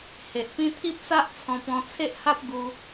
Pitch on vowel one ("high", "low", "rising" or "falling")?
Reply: low